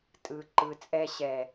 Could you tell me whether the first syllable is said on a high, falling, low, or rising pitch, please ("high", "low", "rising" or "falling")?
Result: low